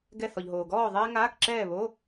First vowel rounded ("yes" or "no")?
no